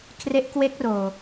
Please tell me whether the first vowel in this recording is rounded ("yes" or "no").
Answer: no